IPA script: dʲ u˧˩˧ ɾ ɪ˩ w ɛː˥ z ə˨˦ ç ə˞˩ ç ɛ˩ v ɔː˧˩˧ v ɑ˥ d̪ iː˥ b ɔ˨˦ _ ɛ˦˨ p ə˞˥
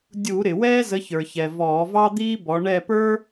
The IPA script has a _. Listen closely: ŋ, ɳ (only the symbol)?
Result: ɳ